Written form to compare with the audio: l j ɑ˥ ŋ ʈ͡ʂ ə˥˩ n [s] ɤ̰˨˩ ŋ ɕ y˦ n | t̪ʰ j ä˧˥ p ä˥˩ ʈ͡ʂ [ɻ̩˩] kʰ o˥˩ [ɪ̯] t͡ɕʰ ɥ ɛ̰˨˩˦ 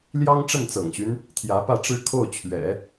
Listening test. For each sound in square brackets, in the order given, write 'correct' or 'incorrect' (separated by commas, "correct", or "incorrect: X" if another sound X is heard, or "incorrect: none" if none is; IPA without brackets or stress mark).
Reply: incorrect: t͡s, incorrect: ɻ̩˥, incorrect: ʊ̯